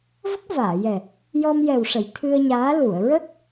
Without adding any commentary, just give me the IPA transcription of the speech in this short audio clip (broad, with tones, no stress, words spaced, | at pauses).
və˦˥k̚vaː˨˩˨jɛ˨˩ | jɔ˧mjɛ˨˩wʂə˨˩˨j t̪ʰɨ˧ə̯ɲaː˧˥lu˨˩˨ə̯ ɹə˦˥k̚